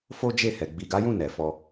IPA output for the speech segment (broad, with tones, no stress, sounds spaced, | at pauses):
f o˦ d͡ʒ e˦˨ h ɛ˨ ɡ͡b i˨ ɡ a˨˦ j ũ˦˨ n ɛ˨ f ɔ˧